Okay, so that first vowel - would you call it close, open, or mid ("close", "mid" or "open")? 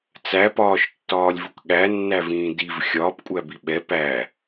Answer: open